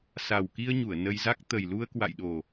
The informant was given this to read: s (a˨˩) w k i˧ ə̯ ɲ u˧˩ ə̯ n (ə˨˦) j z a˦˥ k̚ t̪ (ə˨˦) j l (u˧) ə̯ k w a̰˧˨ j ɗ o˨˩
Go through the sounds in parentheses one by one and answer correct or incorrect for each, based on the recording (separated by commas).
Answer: correct, incorrect, incorrect, correct